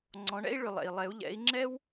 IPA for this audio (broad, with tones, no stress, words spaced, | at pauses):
ŋ͡ǀɔ̃˨˦ɳɛ̰˥i̯ ɭʏ˨lˠɛ̰˨i̯lˠɛ˨˦u̯ ʎɛ̰˨˦i̯ŋ͡ǁɛ˥w